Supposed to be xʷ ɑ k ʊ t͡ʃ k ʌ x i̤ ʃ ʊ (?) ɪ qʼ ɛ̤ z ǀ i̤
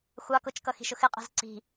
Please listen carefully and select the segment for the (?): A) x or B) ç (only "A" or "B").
A